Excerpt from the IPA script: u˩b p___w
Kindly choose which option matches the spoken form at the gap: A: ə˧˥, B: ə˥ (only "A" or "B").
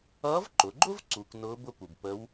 A